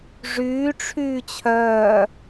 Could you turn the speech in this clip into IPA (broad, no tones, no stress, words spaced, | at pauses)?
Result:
ʐyː ʈ͡ʂʰyːt͡ɕʰœː